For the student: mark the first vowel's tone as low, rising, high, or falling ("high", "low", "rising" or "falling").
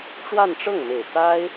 falling